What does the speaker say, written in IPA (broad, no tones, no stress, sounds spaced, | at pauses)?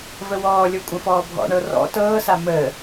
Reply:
v ə w ɔː lʲ ɤ kʷʼ ə̃ f ɔː bʱ ɔ̰ ɳ ɤ r ɔ̰ t ɤː s a m əː